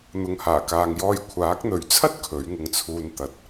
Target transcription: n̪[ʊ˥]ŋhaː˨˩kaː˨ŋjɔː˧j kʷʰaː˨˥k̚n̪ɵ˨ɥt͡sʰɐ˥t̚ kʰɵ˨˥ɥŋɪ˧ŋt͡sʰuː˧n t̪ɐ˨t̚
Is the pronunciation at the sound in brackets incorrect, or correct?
incorrect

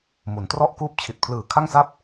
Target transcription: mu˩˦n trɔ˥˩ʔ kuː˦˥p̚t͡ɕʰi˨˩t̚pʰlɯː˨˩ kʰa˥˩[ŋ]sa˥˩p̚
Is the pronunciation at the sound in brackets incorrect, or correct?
correct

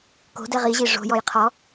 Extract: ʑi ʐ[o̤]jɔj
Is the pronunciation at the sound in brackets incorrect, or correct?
correct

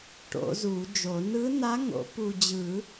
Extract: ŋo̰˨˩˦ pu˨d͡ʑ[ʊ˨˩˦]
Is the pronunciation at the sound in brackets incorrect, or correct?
incorrect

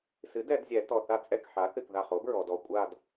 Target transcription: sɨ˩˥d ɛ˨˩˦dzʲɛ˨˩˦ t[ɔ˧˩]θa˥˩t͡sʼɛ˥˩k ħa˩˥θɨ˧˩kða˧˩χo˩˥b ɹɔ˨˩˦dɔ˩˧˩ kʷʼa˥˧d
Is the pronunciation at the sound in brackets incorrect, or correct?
correct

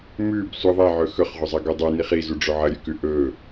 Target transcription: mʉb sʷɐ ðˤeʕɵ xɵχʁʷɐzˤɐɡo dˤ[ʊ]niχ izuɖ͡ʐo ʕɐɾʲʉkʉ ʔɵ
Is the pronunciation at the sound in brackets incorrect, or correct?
incorrect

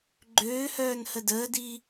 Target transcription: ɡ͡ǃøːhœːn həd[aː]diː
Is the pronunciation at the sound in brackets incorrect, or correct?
incorrect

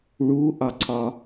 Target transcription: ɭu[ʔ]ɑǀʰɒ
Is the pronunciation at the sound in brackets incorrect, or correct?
correct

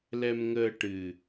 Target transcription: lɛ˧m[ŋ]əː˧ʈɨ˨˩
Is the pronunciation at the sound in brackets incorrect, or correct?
correct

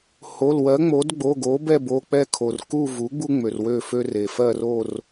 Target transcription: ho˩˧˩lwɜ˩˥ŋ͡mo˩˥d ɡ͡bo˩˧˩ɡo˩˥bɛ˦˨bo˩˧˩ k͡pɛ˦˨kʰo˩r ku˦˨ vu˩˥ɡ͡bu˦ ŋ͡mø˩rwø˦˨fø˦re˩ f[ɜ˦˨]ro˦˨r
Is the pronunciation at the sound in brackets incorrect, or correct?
correct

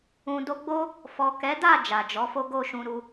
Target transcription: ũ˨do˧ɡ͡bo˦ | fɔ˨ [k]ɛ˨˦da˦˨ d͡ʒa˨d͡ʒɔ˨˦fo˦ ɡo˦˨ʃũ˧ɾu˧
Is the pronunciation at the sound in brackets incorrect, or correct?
correct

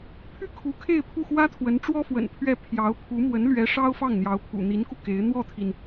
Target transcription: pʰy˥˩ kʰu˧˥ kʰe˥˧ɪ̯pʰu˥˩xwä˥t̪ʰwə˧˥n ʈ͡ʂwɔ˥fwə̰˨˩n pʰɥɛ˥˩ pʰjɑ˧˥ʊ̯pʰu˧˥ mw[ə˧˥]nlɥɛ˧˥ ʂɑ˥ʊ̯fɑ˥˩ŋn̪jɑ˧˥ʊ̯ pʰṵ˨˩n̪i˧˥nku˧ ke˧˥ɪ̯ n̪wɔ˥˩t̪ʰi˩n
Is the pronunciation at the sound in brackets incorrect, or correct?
correct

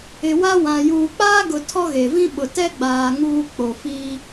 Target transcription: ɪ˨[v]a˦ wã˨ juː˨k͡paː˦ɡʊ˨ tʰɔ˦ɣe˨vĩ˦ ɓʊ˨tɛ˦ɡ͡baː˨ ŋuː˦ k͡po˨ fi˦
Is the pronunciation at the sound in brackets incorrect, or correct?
incorrect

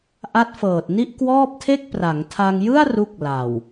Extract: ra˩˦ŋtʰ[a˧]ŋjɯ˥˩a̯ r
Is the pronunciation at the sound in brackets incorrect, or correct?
correct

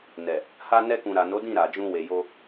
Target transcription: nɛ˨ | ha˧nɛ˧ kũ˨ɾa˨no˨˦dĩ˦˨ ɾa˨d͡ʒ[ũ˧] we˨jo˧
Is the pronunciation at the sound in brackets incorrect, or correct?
correct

